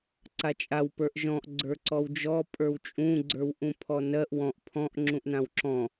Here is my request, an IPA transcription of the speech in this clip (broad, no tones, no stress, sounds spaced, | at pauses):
ǀ a t͡ʃʼ a w p ə˞ ʔ ʒ ɔ̃ ʔ ɡ͡ǀ ə˞ ǀ ɔ w d͡ʒ ɔ pʼ ə˞ w t͡ʃʼ ũ ɡ͡ǀ ə˞ w ʔ ũ pʰ ɔ n ɜ ʔ w ɔ̃ ʔ pʰ ɔ̃ ʔ ŋ͡ǁ ũ ʔ n ã w ǁ ɔ̃